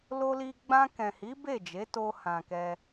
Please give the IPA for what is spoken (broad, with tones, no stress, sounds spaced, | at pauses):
l o˧ l i˧ ɡ͡b ã˧ k ɛ̃˨ h i˨˦ b e˦˨ d͡ʒ e˨˦ t o˧ h ã˨ k ɛ˧